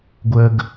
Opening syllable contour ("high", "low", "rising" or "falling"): low